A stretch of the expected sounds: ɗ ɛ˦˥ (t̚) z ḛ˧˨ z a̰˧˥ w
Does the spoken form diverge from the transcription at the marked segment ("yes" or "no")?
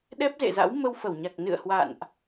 yes